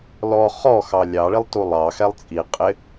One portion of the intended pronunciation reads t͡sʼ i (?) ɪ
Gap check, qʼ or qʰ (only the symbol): qʼ